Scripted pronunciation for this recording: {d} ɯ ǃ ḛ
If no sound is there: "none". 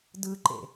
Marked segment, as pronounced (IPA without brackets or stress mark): d